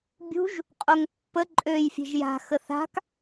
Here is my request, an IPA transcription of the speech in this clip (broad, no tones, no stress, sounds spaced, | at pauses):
bʲ ṳ ʒ | qʼ o ŋ pː ə ǃʼ ø j fʲ e̤ ʒ j a̤ x ə θ a̤ k